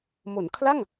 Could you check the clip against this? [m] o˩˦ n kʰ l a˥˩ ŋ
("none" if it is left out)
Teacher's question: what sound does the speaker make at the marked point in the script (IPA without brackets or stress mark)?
m